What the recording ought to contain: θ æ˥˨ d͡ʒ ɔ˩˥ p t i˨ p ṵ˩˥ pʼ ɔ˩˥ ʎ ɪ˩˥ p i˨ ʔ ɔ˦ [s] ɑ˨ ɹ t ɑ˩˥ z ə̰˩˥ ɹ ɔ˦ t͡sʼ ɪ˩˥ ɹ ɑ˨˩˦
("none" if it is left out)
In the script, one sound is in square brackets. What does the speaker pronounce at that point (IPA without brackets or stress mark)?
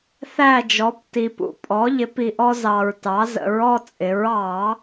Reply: z